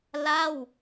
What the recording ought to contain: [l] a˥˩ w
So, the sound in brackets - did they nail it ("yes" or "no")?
yes